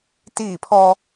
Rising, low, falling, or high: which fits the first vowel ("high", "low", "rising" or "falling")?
falling